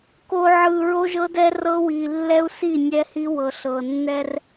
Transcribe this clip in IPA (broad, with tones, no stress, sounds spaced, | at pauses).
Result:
k o˨ ʕ ɯ˨ ɹ o˦ ʒ ɤ˦ d ɛ˦ r ɤ˦ w i˨ lː ɛ˦ u̯ s i˦˨ nʲ ɛ˦ h i˦ w ɤ˨ ɬ ɤ˨ nː ɛ˦ r